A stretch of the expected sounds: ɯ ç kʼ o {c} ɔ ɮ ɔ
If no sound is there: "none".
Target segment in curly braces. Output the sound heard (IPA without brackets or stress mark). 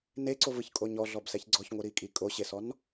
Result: ɲ